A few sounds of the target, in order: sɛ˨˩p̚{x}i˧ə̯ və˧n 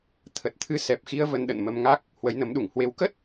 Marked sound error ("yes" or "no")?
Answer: no